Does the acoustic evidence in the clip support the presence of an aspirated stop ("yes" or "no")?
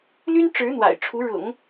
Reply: yes